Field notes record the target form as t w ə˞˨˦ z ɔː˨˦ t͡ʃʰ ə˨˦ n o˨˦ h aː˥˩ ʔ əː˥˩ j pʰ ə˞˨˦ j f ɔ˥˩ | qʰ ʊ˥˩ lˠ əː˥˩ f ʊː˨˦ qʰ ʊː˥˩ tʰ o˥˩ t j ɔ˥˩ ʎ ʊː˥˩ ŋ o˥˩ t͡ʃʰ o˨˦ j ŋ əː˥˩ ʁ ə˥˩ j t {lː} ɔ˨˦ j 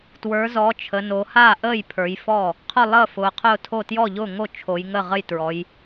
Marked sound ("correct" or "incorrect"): incorrect